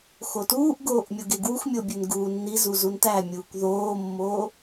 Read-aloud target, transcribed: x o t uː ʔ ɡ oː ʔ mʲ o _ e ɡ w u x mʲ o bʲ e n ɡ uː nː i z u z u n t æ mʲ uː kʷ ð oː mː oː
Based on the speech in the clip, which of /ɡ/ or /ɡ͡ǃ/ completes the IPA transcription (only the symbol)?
ɡ